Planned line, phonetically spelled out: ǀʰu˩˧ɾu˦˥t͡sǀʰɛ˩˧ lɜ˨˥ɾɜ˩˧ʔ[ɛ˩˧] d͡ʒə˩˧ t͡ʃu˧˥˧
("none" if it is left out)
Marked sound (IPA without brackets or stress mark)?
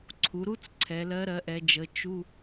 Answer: ɛ˩˧